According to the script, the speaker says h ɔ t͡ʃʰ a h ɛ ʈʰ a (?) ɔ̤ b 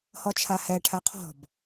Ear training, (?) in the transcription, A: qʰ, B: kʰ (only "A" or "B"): A